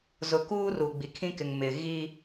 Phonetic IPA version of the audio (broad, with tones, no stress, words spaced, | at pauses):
zʊ˨kuː˦ ru˨ɡ͡bi˨kʰĩ˦kɪ˨ŋ mɪ˨ ɣi˦